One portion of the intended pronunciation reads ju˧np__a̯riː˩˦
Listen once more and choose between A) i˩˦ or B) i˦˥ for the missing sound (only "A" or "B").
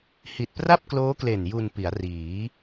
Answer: A